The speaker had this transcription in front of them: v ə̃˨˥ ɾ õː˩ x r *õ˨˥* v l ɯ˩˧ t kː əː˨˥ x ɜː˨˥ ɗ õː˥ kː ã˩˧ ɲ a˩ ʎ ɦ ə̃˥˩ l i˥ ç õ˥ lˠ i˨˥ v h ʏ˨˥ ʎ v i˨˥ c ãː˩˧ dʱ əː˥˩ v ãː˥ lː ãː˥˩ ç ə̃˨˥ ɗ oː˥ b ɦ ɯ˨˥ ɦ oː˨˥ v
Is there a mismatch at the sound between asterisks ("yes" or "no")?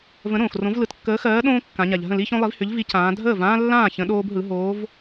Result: no